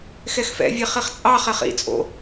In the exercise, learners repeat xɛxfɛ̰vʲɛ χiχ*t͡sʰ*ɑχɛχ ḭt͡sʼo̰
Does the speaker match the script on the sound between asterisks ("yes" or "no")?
no